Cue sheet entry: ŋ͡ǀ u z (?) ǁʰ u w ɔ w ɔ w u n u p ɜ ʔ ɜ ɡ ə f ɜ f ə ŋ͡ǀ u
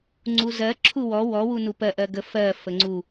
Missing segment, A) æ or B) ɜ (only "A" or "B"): B